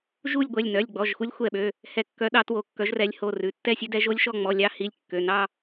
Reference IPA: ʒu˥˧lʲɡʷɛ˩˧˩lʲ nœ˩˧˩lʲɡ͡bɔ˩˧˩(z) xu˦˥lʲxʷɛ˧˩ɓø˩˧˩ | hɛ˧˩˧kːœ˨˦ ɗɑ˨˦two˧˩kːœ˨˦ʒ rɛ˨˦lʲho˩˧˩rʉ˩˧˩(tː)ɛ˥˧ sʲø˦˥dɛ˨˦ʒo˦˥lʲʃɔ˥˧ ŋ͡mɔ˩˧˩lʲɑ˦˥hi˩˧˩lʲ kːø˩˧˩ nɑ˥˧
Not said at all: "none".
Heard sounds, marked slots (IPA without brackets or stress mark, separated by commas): ʒ, tː